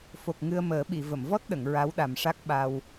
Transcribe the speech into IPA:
f o˨˩ k̚ ŋ ɨ˧ ə̯ m əː˨˩˦ ɓ i˨˩˨ v ə˨˩˨ m v ɔ˦˥ t̚ ɗ ə˨˩˨ ŋ ɹ a˧˥ w ɗ a˨˩ m ʂ a˦˥ k̚ ɓ a˧ w

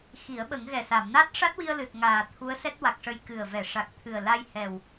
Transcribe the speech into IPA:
x i˨˩˦ ə̯ ɓ ə˨˩˦ ŋ ɣ ɛ˨˩ s a˨˩˨ m n a˦˥ t̚ ʂ a˦˥ t̚ w i˧ ə̯ l ɨ˨˩ t̚ ŋ aː˨˩ t̪ʰ u˧˥ ə̯ s ɛ˦˥ t̚ w a˨˩ k̚ ʂ ə˧˥ j k ɨ˨˩ ə̯ v ɛ˨˩˨ ʂ a˨˩ k̚ t̪ʰ ɨ˨˩ ə̯ l a˧ j h ɛ˨˩ w

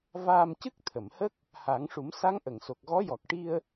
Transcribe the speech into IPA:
v aː˧ m c ɨ˦˥ k̚ t̪ʰ ə˨˩˨ m h ə˦˥ k̚ | h a˨˩˦ ŋ ʂ u˨˩˦ m s a˧˥ ŋ ʔ ə˨˩˨ ŋ s o˨˩ k̚ ɣ ɔ˧˥ j ɔ˨˩ k̚ ʈ i˧ ə̯

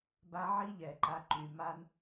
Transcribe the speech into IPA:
b a˦ ʕ iː˦ ʎ ɛː˨ ǃ a˧ ǃ y˨ m aː˦ n

